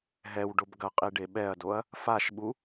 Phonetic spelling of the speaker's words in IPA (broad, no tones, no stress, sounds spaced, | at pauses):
ɦ ɛ w ɖ o b ɡ ɐ qʼ i ɖ e ɓ ɛ ɐ̯ d o ɐ̯ | f a ʃ ɓ u